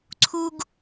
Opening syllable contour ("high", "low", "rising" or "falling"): high